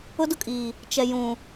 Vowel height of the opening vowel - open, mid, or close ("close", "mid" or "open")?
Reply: close